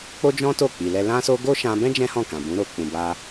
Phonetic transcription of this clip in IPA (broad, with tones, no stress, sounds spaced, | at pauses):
k͡p o˦ d͡ʒ ɔ̃˦ t o˦˨ k͡p i˨ l ɛ˧ l ã˦ s o˦ ɡ o˦ ʃ ã˧ b ɛ̃˦ d͡ʒ ɛ̃˦ h ɔ̃˦˨ k ã˨ b ũ˨˦ ɾ o˧ k͡p ũ˨ b a˧